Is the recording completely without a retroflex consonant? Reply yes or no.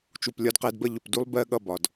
yes